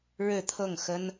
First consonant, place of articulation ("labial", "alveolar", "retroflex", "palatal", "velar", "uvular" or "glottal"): retroflex